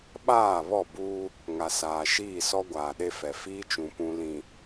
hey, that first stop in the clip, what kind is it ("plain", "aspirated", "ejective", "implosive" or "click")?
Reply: implosive